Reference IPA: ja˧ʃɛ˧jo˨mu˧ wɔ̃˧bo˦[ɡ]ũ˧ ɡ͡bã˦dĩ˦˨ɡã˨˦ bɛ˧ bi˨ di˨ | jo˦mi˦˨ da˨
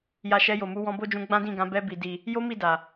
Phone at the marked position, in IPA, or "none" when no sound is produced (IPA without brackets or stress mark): d͡ʒ